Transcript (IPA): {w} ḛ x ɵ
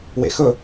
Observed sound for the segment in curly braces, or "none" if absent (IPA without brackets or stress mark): w